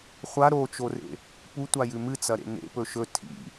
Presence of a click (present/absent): absent